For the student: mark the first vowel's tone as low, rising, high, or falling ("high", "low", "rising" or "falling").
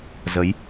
rising